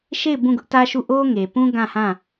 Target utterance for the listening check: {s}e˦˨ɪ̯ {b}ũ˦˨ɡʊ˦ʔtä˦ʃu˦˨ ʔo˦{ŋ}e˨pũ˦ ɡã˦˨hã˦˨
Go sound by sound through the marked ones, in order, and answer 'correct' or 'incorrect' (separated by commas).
incorrect, correct, correct